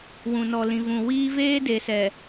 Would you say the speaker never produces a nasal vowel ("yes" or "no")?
no